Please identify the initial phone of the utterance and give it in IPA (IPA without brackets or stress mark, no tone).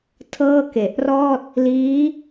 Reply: tʰ